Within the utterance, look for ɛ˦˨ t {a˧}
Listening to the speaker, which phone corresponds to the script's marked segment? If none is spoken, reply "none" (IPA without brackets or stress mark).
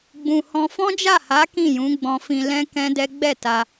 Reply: a˧